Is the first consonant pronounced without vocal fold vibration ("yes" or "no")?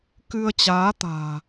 yes